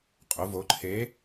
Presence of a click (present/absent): present